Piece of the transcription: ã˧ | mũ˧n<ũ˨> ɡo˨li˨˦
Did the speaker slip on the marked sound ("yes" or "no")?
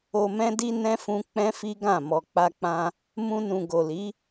no